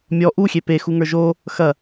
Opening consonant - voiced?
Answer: yes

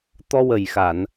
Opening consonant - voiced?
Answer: no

